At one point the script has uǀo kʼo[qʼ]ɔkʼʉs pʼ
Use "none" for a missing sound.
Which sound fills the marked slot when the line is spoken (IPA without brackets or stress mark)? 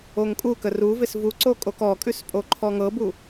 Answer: k